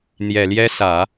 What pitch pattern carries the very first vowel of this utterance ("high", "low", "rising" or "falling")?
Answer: low